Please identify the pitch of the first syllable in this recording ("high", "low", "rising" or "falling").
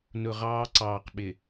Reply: low